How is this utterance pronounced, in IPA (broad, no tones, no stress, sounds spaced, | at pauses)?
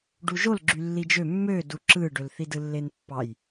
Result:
ɖ u ʒ o l ɡ͡ǁ y lː i d͡ʒ ø mː ø d u ǁ ɯ ɖ ø l θ i d ɯ lː e n pː ɑ j